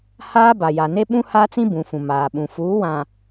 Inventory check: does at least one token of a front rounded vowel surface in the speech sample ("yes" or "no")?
no